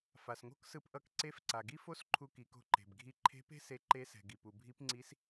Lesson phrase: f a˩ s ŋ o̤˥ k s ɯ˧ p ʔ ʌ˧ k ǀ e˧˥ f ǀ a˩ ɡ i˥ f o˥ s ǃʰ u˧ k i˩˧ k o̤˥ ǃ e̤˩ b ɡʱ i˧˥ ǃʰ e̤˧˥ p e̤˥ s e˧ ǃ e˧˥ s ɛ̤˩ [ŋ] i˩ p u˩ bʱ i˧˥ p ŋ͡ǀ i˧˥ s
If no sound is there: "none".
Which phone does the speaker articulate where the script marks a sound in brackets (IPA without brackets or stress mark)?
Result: ɡ